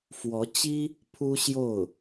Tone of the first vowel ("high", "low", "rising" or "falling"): rising